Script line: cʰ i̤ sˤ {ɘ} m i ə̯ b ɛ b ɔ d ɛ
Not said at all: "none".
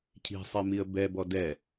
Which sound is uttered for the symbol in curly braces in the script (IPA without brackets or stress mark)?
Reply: e